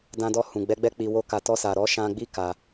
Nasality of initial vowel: nasal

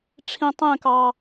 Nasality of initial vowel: nasal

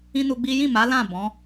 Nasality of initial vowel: nasal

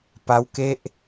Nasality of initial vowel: oral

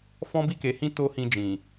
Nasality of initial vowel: nasal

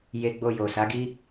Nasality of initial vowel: oral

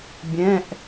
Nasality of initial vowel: nasal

